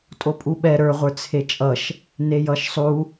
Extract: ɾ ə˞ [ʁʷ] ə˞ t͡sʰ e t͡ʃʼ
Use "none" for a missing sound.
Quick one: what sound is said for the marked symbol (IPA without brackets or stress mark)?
ʁʷ